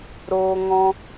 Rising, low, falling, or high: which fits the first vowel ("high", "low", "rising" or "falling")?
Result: high